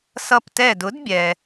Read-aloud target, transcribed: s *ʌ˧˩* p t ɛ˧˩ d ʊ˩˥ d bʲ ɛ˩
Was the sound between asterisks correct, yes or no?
yes